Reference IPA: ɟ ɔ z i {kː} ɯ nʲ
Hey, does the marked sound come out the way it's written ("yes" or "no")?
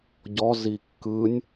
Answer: yes